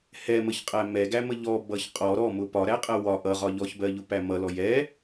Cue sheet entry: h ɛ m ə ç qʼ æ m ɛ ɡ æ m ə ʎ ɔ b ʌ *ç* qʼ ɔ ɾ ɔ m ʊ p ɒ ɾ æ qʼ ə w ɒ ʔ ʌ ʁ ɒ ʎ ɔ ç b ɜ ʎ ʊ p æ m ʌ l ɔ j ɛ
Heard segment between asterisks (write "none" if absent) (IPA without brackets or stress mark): ç